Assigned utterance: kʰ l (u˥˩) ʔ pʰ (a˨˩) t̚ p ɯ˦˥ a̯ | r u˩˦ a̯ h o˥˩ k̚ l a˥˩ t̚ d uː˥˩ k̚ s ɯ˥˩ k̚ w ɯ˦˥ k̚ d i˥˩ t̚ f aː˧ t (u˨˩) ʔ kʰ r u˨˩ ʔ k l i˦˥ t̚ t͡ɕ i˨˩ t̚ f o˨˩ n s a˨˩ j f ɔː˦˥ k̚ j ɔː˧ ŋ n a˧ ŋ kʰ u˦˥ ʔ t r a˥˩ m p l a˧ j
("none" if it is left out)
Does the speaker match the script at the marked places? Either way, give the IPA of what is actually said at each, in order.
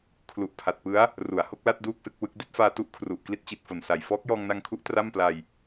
u˨˩, a˨˩, u˦˥

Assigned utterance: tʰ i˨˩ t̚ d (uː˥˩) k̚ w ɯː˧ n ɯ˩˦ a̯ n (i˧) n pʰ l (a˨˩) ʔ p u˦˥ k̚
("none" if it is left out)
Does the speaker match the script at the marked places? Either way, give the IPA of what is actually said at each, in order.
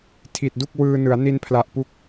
u˥˩, i˧, a˨˩

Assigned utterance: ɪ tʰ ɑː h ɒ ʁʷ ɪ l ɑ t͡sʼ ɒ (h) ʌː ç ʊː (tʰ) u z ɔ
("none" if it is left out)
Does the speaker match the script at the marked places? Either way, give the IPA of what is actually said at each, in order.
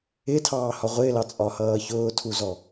h, tʰ

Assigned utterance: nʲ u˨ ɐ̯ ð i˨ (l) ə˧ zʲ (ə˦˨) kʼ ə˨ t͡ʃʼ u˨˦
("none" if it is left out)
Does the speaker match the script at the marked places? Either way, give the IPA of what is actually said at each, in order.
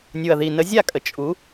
n, a˦˨

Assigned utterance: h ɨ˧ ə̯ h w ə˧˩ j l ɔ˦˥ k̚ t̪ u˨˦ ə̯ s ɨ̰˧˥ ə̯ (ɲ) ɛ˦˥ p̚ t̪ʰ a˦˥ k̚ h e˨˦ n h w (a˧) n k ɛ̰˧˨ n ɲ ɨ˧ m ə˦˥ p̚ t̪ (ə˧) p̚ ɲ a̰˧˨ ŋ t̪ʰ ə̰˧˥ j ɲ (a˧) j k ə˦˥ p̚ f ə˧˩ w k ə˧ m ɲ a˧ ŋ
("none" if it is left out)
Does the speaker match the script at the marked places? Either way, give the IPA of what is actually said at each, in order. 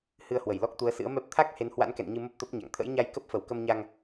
m, a̰˧˥, ə˦˥, a˧

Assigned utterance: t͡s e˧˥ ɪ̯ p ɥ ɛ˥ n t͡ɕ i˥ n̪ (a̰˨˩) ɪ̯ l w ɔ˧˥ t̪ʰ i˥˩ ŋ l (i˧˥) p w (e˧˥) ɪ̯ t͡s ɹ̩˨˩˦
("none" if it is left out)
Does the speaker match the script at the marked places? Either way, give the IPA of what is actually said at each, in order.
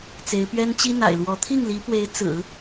a̰˨˩, i˧˥, e˧˥

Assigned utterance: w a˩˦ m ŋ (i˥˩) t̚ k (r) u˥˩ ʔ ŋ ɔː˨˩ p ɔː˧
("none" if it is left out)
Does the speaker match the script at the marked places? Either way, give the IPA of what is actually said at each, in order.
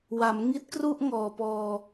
i˦˥, r

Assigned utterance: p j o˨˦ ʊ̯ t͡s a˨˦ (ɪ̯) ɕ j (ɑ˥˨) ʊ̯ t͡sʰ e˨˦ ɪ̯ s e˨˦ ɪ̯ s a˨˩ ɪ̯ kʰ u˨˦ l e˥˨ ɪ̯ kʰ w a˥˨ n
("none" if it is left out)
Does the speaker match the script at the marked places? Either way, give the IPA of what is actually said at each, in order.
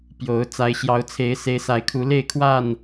ɪ̯, ɑ˨˦

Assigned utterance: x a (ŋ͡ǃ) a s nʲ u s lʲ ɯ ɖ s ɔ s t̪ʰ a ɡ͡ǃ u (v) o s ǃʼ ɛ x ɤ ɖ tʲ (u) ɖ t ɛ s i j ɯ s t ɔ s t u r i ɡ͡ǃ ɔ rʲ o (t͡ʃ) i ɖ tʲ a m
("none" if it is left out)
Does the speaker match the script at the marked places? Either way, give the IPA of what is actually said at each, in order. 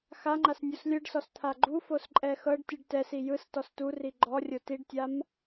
ŋ͡ǃ, f, ɯ, t

